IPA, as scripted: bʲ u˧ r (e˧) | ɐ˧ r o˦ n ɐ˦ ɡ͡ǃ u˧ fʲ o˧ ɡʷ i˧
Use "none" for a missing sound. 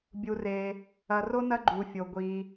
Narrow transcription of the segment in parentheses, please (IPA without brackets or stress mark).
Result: e˧